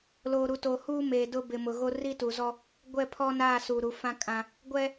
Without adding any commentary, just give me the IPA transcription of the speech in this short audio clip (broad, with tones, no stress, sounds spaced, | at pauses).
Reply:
l oː˨ ɾ u˨ t o˨ h uː˦ m eː˨ d ʊ˦ b ɪ˨ m ʊ˨ ɣ o˦ r i˦ t u˨ z ɔ˦ | ɡʷ ɛ˦˨ pʰ ɔ˦ n aː˦˨ s uː˨ ɾ u˨˦ f ã˦ kʼ ã˦ | ɡʷ ɛ˦